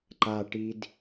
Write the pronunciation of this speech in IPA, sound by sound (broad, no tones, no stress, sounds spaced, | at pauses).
ǃ a ʈ i d